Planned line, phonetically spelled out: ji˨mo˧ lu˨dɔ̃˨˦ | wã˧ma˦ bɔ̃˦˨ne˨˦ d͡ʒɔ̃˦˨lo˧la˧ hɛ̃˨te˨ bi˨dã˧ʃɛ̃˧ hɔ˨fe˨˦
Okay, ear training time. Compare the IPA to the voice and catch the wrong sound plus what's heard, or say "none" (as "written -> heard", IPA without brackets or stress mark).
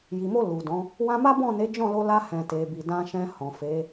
ɔ˨ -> ɔ̃˨